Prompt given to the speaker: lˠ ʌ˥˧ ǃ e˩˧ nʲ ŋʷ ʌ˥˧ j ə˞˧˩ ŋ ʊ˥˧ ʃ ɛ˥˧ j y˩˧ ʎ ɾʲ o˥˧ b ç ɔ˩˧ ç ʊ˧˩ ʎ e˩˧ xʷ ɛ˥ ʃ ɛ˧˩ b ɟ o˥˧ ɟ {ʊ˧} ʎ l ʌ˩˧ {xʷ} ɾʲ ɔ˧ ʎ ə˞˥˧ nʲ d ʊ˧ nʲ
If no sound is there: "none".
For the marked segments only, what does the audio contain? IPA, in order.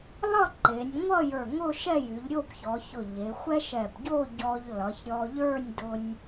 ɔ˧, ç

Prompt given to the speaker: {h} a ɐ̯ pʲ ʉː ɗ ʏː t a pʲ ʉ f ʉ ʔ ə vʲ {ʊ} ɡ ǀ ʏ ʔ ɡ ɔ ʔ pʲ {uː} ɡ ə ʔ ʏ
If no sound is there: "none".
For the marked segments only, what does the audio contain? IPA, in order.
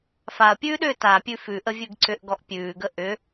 f, ʉ, ʉː

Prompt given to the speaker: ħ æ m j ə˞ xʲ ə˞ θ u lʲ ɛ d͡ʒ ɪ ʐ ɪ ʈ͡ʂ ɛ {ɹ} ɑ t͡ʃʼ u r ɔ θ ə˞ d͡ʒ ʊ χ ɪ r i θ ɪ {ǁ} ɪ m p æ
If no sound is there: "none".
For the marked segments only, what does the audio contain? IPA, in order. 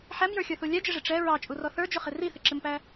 ɹ, ǁ

